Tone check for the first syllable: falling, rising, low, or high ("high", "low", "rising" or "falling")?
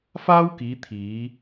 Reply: high